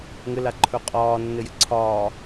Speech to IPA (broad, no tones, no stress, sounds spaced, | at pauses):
ŋ ɘ l a ǃʰ ɵ qʼ ɒː nː ɘ j ɪ ǀʰ ɒ